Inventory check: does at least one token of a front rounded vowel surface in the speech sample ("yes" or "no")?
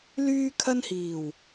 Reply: yes